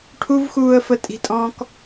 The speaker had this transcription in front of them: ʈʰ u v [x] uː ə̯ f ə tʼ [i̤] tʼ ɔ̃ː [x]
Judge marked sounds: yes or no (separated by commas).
yes, yes, no